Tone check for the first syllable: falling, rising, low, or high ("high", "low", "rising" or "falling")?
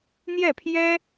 falling